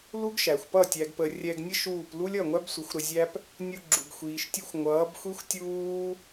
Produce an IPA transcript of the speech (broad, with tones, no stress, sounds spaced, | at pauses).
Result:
l u˦ ɡ ʃ æ˨ xʷ p ʌ˦˨ tʲ æ˧ ɡ p ə˧ rʲ ɛ˧ ɡ nʲ ə˦ ʃ uː˦˨ p l u˦ lʲ ʌ˦˨ ŋʷ æ˦ b sʷ ə˨˦ xʷ ɾ ə˧ zʲ æ˦ p | nʲ u˧ ɡ͡ǁ u˨ ɡ xʷ iː˨ ʃ tʲ u˧ xʷ ŋʷ ʌː˨˦ b xʷ i˦ xʷ tʲ uː˦